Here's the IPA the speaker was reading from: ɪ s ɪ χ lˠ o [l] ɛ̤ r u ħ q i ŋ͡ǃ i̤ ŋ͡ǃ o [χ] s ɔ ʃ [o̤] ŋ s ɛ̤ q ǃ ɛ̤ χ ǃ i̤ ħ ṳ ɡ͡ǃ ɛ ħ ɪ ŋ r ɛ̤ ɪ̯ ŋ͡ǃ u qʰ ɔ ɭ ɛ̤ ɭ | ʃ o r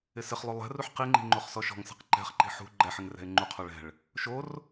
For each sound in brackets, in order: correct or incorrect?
incorrect: lˠ, correct, incorrect: ɔ̤

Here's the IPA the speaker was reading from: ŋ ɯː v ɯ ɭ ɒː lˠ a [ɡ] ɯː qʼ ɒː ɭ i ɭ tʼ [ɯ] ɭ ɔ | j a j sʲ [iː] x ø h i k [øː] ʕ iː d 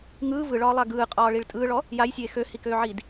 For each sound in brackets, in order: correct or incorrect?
correct, incorrect: ɯː, incorrect: eː, correct

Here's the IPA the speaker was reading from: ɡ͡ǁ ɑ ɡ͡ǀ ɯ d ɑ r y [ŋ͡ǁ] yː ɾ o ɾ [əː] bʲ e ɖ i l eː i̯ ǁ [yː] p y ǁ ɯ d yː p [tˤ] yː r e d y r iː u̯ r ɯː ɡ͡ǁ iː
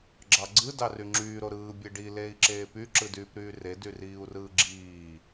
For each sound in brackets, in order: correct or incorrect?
correct, incorrect: ɯː, incorrect: eː, incorrect: ɾ

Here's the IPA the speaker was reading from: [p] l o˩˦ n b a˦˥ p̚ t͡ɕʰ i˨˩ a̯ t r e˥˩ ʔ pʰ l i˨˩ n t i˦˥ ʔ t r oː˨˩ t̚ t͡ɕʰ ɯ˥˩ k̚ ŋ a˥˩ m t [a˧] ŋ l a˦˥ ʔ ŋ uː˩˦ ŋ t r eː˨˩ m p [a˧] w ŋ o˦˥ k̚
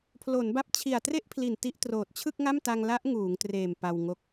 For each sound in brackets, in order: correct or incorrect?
incorrect: pʰ, correct, correct

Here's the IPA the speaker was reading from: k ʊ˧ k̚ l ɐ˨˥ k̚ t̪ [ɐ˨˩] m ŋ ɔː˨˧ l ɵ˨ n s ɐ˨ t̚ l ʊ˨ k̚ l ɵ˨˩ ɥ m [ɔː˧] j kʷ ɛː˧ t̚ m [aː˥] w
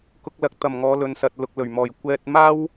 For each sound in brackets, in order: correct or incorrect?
correct, incorrect: ɔː˨˩, correct

